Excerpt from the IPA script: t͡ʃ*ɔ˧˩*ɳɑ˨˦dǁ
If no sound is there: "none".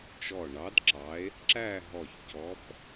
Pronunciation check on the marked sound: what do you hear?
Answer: ɔ˧˩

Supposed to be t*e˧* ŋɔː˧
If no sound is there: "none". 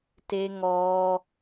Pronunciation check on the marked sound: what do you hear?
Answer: e˧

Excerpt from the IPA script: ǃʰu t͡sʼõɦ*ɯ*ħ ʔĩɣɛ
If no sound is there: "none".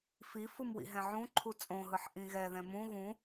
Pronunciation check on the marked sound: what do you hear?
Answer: ɯ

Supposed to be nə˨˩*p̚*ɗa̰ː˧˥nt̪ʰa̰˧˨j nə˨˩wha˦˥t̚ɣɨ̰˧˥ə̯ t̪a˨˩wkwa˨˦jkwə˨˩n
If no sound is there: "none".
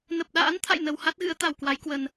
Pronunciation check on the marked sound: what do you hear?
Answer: p̚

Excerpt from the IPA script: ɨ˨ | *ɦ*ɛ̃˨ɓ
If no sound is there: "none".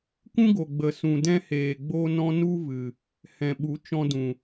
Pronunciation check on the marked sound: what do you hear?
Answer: h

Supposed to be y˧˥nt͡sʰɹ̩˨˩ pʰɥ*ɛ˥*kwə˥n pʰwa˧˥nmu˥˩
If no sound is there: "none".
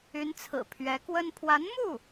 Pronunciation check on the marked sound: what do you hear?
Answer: ɛ˧˥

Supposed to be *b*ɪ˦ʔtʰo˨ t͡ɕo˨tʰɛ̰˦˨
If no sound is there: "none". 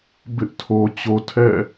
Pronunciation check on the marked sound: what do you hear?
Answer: b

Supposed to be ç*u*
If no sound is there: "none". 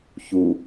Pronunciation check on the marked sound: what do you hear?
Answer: u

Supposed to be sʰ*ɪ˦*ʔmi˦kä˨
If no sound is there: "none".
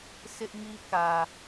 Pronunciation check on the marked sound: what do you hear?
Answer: ɪ˦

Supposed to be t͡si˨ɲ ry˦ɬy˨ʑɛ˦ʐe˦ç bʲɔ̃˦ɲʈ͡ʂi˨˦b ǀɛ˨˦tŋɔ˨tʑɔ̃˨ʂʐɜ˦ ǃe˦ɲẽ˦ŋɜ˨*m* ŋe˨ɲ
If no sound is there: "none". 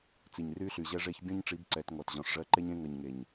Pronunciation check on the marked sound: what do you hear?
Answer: ɲ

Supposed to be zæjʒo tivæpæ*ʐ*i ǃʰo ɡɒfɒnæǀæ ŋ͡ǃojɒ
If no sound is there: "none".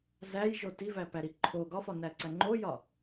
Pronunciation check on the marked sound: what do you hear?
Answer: ɾ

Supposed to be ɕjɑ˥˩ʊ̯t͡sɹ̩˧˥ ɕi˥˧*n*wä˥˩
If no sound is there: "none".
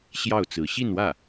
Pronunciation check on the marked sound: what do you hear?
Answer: n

